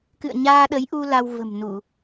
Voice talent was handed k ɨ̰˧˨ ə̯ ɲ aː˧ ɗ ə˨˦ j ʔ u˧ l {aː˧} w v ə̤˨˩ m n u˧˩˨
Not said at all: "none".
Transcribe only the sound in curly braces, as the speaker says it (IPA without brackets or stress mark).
a˧